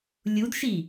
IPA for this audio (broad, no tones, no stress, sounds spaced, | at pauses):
lʲ u d ʃ i